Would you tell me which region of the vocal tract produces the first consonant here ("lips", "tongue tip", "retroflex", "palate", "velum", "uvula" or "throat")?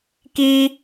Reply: velum